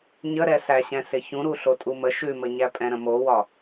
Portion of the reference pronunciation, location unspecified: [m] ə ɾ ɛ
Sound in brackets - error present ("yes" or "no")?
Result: yes